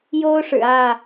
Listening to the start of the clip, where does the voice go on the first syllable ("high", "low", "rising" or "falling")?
high